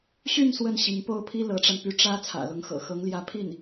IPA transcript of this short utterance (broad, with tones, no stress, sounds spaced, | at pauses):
ɕ y˥˧ n s w ə˥˩ n ɕ i˧˥ ŋ p o˥ ʊ̯ pʰ i˥ l ɤ˧˥ ʈ͡ʂ a˧ n p y˥ ʈ͡ʂ ä˥ t͡sʰ ä̰˨˩ l ʊ˧˥ ŋ x ɤ̰˨˩ x ɤ˧˥ ŋ l j ä˧˥ pʰ i˥˩ n